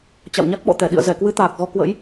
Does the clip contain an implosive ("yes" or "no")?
yes